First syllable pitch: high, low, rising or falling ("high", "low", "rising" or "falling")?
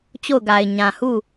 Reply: falling